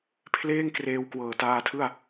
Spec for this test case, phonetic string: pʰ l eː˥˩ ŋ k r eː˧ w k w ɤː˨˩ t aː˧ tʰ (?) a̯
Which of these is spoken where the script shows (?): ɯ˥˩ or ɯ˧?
ɯ˥˩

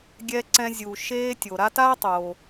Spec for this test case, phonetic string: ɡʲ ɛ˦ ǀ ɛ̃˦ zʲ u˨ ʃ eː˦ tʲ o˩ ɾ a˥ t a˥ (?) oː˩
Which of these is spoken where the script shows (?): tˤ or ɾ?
tˤ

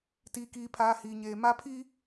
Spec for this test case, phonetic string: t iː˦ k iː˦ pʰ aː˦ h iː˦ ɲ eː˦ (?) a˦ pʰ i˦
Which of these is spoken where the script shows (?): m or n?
m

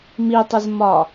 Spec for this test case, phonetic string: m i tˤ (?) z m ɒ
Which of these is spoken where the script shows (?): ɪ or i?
ɪ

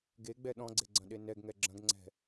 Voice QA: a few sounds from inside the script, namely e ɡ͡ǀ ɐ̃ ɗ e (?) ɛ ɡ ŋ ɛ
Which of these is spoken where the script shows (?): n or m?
n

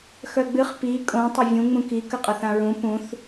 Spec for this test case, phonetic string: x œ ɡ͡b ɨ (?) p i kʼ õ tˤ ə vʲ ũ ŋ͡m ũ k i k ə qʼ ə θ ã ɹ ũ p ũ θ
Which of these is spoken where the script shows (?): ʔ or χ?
χ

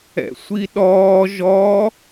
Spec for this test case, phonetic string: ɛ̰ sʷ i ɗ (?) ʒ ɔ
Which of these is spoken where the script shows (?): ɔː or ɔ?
ɔː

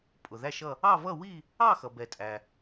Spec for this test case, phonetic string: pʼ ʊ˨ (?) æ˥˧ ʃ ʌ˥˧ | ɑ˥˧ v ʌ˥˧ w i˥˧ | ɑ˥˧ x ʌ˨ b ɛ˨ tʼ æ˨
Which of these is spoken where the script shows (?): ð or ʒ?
ð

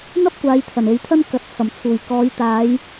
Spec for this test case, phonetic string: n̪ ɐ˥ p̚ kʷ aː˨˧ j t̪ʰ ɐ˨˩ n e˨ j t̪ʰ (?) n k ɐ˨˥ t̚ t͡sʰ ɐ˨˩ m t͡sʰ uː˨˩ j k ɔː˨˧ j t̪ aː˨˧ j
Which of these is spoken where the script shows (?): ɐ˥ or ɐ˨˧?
ɐ˥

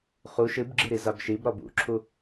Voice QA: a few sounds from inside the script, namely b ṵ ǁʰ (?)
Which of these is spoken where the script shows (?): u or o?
u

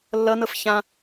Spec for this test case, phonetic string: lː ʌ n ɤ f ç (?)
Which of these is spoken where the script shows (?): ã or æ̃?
ã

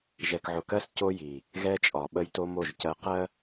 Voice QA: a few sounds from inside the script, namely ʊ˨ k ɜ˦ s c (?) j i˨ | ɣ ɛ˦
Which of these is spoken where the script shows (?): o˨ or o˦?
o˦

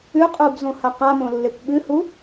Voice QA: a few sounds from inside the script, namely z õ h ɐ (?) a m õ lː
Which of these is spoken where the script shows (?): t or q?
q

